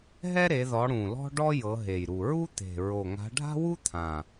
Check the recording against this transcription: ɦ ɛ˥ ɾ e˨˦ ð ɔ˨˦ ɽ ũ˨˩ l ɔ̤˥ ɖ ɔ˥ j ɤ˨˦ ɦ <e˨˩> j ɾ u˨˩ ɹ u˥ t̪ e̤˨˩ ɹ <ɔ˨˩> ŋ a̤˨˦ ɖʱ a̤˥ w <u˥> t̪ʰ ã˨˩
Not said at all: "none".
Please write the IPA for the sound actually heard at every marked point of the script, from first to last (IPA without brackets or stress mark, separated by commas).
e˨˩, o˨˩, u˥